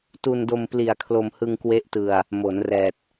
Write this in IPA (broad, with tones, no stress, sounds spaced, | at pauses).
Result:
t u˧ n d o˧ m p l i˨˩ a̯ kʰ l o˧ m h ɯ˧ ŋ k w e˦˥ ʔ t ɯ˧ a̯ | m o˩˦ n r ɛː˨˩ t̚